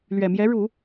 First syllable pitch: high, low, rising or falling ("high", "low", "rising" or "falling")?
low